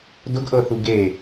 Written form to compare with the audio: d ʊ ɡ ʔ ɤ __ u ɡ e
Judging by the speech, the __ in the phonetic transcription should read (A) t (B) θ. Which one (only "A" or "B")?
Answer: B